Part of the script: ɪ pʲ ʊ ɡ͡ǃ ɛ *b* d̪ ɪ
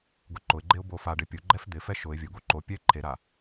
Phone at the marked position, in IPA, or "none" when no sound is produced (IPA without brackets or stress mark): f